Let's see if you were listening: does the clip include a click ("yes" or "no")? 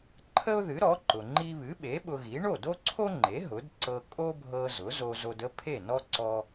yes